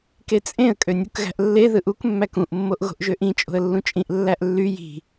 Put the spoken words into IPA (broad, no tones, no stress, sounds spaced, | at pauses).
k e t͡sʼ ẽ ə̯ kʼ ø nʲ u k ɣ æ̤ ʔ lː e ð ɯ ʔ u k mː æ k ũ ʔ mː o ʔ ɣ o̤ ʔ ʒ ø ʔ ĩ t͡ʃʼ o̤ ə̯ lː ũ t͡ʃʼ ĩ ʔ lː æ ʔ lː y j i̤